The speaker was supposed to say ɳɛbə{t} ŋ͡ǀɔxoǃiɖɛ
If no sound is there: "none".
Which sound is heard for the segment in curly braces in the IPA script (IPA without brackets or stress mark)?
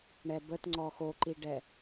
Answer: t